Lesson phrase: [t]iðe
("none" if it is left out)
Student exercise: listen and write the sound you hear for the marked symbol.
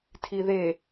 tʰ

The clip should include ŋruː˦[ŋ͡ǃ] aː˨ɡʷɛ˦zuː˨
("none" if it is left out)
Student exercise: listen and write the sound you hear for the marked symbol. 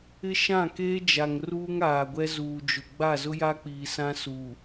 ŋ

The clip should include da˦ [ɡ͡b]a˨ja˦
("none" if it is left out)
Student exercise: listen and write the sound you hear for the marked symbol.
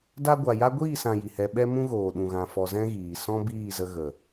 ɡʷ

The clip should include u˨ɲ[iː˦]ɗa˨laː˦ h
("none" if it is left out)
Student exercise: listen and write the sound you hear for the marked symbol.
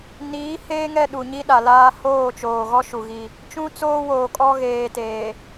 i˦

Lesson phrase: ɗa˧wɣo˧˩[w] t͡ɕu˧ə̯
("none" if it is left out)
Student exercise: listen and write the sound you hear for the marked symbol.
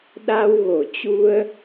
none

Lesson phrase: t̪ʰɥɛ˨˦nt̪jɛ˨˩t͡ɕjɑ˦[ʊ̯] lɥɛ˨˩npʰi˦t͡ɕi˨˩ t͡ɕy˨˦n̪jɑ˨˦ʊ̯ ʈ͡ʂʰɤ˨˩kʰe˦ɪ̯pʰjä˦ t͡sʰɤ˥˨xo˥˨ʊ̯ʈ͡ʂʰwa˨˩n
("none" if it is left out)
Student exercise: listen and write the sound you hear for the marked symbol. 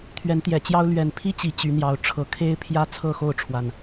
ʊ̯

